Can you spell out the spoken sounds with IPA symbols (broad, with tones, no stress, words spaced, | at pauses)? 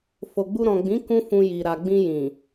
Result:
fo˨ɡ͡bu˧ ɾɔ̃˨ɡ͡bĩ˨˦ kũ˦fũ˧ji˨ ɾa˨ɡ͡bĩ˧ jĩ˨